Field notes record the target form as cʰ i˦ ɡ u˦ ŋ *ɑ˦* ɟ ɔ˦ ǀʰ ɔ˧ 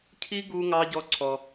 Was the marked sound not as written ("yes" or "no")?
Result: no